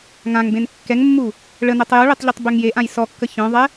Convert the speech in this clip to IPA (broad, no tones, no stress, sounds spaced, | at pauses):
ŋ ã ŋ b ẽ n kː ɛ ŋ mː u | ɭ ə n œ tˤ j o ɭ e tˤ ʎ y tˤ b ø ŋ j e ʔ ã j s ɔ kː ə ç œ̃ ðˤ ɛ